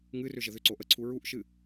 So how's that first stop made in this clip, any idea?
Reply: click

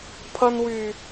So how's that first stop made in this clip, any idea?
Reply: aspirated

